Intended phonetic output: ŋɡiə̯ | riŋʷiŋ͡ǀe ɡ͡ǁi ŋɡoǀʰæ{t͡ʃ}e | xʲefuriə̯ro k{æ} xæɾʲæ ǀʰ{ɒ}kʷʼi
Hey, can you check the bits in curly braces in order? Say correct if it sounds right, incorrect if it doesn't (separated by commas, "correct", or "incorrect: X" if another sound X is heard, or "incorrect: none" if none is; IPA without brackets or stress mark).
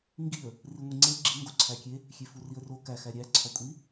incorrect: kʲ, correct, correct